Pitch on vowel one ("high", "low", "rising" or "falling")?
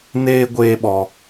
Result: high